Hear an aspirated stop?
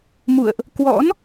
no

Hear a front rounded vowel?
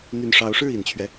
yes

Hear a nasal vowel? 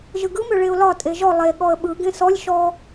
yes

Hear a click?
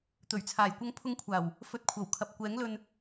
no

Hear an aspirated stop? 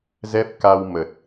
no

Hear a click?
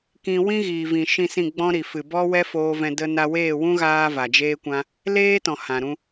no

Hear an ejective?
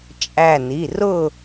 yes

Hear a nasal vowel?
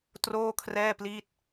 no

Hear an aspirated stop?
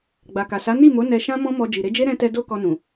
no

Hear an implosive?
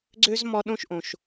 yes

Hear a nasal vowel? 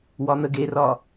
no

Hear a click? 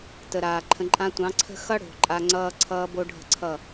yes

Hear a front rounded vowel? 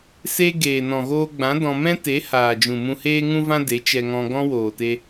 no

